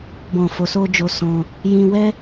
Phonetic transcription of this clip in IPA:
b ɔ̃˨ f o˨ s o˧ d͡ʒ o˧ s ɔ̃˧ | j ĩ˧ w ɛ˦

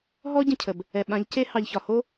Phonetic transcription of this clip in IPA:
ɦ ɔ˦ ɟ ə̃˦˨ cʰ ə˨ b | ɛ˨ ɓ ã˨˦ ʎ c e˦ h ɑ˨ ʎ ç ɒ˨ h o˦

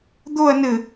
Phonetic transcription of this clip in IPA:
d̪ o ɐ̯ n ɘ

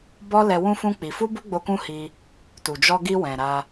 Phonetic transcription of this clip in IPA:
b ɔ˦ l ɛ˧ w ũ˦ f ũ˦ k͡p i˧ f u˦ b u˦ ɡ͡b o˧ k ũ˦ h i˧ | t u˨ d͡ʒ ɔ˧ ɡ i˧ w ɛ̃˨ ɾ a˧

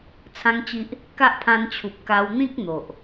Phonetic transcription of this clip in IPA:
t͡sʰ ã˦ ŋ t͡ɕ i˦ ʔ | k a˦ ʔ pʰ ã˧ n t͡ɕʰ u˨ p̚ k a˧ w n̪ ĩ˦ k̚ n̪ o˨ ʔ

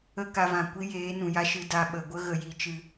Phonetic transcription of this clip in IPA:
ə˦ k a˧ v ã˨ kʷ i˦ j eː˨˦ n ũ˨ j a˧ ʃ ɨ˨ d a˨ ɓ ə˨ ɡʷ ə˦ ɣ ə˨ j i˨ t͡ʃ ɨ˨

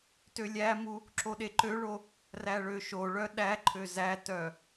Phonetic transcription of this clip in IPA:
t ø lʲ æ m u | ǁ o ɗ e ǃ ø ɭ o | r æ ɭ ø ʃ o ɭ œ ɗ æ ǃʰ ø z æ t œ

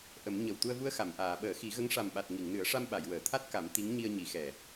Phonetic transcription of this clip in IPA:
ʔ ə˨˩˦ m ɲ ə˨˩ w t̪ u˧ ə̯ v u˧ ə̯ x a˨˩˨ m ʔ aː˨˩˨ ɓ əː˨˩˦ x i˨˩˦ ɣ ə˧˥ ŋ ʂ a˨˩ m ɓ a˨˩ t̚ ŋ i˨˩˨ ŋ n ɨ˨˩˦ ə̯ ʂ a˧ m ɓ a˨˩˨ j w əː˨˩˨ t̪ʰ a˦˥ t̚ k a˨˩˦ m t̪ i˧˥ ŋ ɲ i˧ ə̯ ɲ i˨˩˦ x ɛ˨˩

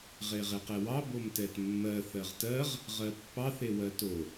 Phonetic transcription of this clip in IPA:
ʁ e ʁ e q ɛ w ɑ b o m t ɛ t mː ɜ θ ɜ ʁ t ɜ ʁ | ʁ ɜ pː ɑ θ e w ɜ t o

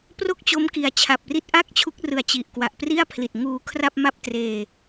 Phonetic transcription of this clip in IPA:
p r o˥˩ k̚ t͡ɕ o˦˥ m k i˨˩ a̯ t͡ɕʰ a˨˩ p̚ r i˥˩ t̚ ʔ a˥˩ k̚ t͡ɕʰ u˦˥ k̚ r ɯ˨˩ a̯ t͡ɕ i˨˩ ʔ k w a˨˩ ʔ p r i˥˩ a̯ pʰ l i˨˩ t̚ ŋ uː˧ kʰ r a˥˩ p̚ m a˥˩ p̚ t r eː˧

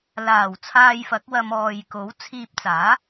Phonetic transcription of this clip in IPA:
l aː˨˩ w t͡sʰ aː˧ j f ɐ˨˥ k̚ w ɐ˧ m ɔː˨ j k o˨˥ w t͡sʰ iː˧ p̚ t͡s aː˨˥

